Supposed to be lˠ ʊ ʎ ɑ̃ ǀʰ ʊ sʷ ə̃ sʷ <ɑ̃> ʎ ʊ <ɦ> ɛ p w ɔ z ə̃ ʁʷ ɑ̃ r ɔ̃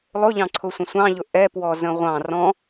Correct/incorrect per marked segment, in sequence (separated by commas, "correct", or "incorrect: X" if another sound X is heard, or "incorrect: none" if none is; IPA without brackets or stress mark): correct, incorrect: ʔ